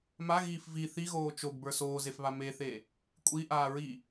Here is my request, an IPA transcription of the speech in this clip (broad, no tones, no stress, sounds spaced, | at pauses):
m a ɣ iː f v i θ i ɣ oː t͡ʃ o ɡ b ə˞ s oː z e f β a m e θ e | kʷʼ i ʔ aː ɹ i